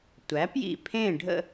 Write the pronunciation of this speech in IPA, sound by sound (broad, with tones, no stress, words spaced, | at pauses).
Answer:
tʷæ˩˥pjḭ˧˩ pʰẽ˥˨ ɖʱə̰˥˨